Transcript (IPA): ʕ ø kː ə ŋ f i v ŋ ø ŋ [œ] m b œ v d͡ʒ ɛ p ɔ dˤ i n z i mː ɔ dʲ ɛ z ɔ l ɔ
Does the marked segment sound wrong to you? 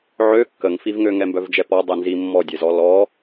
yes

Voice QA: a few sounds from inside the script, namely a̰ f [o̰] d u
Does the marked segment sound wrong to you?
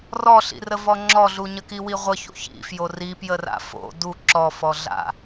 no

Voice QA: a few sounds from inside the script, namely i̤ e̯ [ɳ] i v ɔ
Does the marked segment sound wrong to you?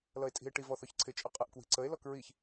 yes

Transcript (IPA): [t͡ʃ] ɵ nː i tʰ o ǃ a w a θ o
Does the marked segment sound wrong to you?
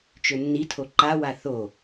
no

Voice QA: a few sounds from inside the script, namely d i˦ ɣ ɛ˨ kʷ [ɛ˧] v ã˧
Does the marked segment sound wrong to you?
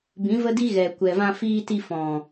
yes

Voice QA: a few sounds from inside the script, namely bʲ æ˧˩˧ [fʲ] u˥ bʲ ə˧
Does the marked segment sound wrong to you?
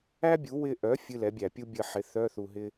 yes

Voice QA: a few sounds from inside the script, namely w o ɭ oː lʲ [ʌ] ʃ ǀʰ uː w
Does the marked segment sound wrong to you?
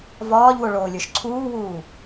yes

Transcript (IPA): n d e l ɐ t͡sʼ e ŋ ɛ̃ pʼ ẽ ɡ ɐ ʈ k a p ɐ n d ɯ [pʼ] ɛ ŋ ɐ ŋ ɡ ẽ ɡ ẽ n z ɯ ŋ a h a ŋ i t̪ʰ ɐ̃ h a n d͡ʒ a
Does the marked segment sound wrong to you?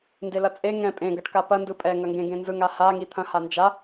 no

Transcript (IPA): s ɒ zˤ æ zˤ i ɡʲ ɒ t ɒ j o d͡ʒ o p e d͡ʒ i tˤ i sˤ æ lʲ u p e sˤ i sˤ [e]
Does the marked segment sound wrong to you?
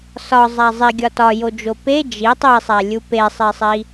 yes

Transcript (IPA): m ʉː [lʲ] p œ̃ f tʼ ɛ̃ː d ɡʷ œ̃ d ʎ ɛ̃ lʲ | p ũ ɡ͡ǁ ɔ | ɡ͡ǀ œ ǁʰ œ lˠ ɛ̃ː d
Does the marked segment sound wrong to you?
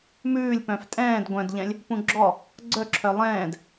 no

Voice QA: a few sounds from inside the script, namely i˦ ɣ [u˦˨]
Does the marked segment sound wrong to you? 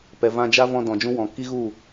no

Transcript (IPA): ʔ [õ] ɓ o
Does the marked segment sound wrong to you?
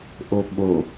yes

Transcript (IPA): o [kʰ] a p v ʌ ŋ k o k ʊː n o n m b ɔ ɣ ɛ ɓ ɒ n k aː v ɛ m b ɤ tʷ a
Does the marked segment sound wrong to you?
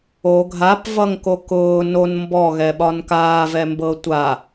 yes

